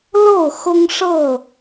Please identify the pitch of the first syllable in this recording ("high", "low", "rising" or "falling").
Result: falling